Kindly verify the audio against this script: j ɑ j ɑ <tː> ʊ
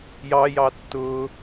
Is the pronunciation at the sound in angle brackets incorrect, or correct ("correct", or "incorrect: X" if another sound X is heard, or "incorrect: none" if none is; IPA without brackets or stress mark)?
correct